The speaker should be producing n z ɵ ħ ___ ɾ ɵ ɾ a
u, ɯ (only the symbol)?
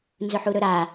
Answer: u